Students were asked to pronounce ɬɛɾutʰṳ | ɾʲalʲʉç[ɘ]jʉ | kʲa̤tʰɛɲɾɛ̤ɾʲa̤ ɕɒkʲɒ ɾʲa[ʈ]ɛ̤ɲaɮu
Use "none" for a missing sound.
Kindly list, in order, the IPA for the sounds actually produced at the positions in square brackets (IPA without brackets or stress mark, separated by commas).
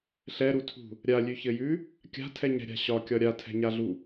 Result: ɘ, tʰ